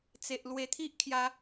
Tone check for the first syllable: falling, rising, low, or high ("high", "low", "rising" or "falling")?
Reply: low